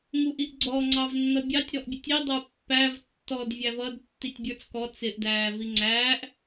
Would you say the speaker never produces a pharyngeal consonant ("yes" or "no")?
yes